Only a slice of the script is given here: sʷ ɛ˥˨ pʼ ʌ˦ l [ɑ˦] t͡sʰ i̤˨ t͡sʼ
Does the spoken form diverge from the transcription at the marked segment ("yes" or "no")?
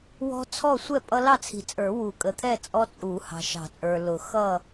yes